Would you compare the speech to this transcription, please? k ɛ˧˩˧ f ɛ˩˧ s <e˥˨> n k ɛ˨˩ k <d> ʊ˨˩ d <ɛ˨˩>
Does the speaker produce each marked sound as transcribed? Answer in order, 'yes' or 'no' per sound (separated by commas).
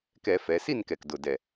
no, yes, yes